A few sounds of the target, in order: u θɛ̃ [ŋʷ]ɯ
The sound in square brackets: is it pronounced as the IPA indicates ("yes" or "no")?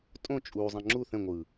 yes